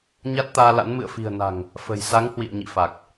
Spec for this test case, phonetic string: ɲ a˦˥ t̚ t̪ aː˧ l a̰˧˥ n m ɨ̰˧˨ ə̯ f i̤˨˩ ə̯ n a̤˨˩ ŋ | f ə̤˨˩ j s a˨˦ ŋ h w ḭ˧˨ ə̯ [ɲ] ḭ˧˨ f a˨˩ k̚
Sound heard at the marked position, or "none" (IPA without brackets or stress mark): ɲ